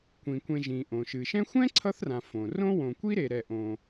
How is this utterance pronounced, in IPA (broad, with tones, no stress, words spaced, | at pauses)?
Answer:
kʷĩ˩kʷẽ˨ ʒĩ˩ʔõ˩ʃɨ˩ ʃɛ̃˦xʷɛ̃˥ ǀʰʌ˥θrã˨ fõ˩rõ˥ wõ˨kʷi˥ɾe˨ ɾɛ˨ʔõ˨